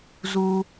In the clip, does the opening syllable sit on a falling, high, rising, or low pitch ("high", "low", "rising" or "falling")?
high